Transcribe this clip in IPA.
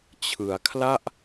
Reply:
t͡ɕʰɯ˩˦a̯ kʰla˥˩ʔ

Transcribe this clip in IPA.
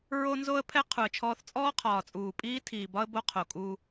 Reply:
ɹo˦nzo˦ə̯pʰɛ˦ qʰu˨ə̯t͡ʃʰɔː˦θ t͡sʼɔː˦qʰɒː˨t͡sʼuː˨pʼiː˦ tʰiː˨bɒ˦ə̯ bo˦qʰo˨kʼu˦

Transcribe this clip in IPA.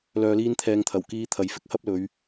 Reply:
lœː˧liː˥nt̪ʰɛː˧ŋt̪ʰɐ˨˩w kiː˧t̪ʰɐ˨j fɪ˥k̚hɐ˥p̚lɵ˨˧ɥ

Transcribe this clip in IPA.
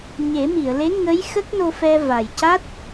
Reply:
ɲe˨˩˦mi˨˩˨ə̯le˧˥ŋəː˧˥j xə˦˥k̚no˧fɛ˧ va˨˩jca˦˥t̚

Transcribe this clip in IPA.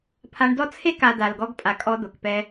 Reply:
pʰa˧ɳdɔ˦ t͡sʰe˦ka˨ da˨lɡɔ˧ɡpʼa˨ kʼɔ˧d̪o˨kpɛ˧

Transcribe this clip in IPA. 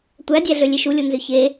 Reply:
tʷædʲæɮø lʲeʃulʲonzø çe

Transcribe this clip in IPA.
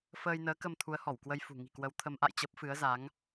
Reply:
fəː˧jnəː˨˦kə˧m t̪ʰu˨˦ə̯hɔ˧˩wkwə˧j fṳ˨˩ŋi̤˨˩kwə˨˦w t̪ʰə˨˦mʔa̰˧˨j t͡ɕə˦˥p̚fɨ˨˦ə̯za˨˦ŋ

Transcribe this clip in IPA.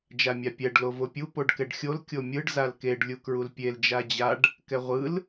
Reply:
d͡ʒamʲapʲɛɖ lovopʲu poɖkɛɖxʲol kʲomʲɯɖ zalkeɖ lʲukɹulpʲel d͡ʒad͡ʑaɖ | kɛʁʷɯl

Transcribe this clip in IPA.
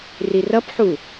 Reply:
rirʌpħu

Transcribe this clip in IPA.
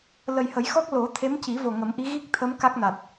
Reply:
lə˨˩jhə˨˩˦jxɔ˦˥k̚ lo˨˩˦ t̪ʰe˧˥mci˨˩˦vo˨˩ ŋə˨˩˦mʔi˧˥ ɣi˦˥k̚t̪ʰə˧˥m ka˦˥k̚na˨˩t̚

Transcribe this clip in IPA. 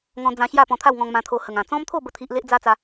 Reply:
ŋɔ̃˧ d͡zã˧ɕja˥˧ pɔ̃˧t̪ʰa˥˧wŋɔ̃˧ŋmã˧ t̪ʰo˧hə˨˩ŋã˨˩ t͡sɔ̃˦mt̪ʰo˥˧ bə˥˧t̪ʰi˦ʔ le˦ʔd͡za˦t͡sa˧

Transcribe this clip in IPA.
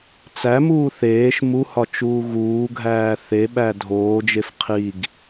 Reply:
t͡sæmuː θeːʃ muhɒ t͡ʃuːɣuːɡʱæː θeɓæ dʱoːd͡ʒef qʰiɡ

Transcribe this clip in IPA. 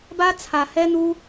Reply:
ba˧ t͡sʰa˨ hɛ˧n̪u˧

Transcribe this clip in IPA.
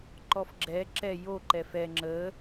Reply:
ǃɔfɡ͡ǁɛ ǁɛ jo ǃɛfɛ ŋ͡ǁə

